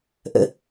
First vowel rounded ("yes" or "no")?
no